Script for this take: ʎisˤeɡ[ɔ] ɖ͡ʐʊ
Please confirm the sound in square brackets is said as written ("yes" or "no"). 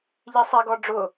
yes